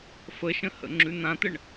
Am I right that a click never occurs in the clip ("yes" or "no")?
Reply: no